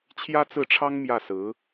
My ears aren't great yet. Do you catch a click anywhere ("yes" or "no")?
no